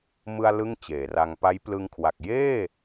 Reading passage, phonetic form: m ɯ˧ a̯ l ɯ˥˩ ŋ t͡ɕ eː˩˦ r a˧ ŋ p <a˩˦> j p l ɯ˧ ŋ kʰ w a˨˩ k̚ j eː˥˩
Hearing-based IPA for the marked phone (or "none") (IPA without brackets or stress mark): a˦˥